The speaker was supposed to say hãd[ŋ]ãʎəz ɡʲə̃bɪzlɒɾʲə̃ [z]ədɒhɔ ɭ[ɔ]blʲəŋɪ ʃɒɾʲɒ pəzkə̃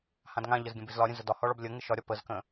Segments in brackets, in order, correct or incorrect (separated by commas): correct, correct, correct